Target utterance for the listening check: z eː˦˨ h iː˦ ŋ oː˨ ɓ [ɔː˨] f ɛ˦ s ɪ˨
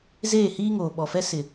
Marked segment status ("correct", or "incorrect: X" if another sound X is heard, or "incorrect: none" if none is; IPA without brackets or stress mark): incorrect: ɔ˨